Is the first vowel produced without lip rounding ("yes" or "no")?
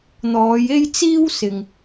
no